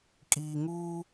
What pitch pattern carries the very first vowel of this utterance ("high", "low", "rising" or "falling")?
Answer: low